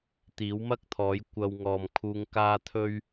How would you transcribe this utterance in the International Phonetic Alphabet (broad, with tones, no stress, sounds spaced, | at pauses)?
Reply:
t̪ iː˨˥ w m ɐ˥ k̚ t̪ʰ ɔː˨˥ j kʷ ɐ˧ w ŋ ɔː˨ m kʰ uː˧ ŋ k aː˥ t̪ʰ ɵ˥ ɥ